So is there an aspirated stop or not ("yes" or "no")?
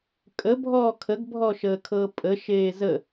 yes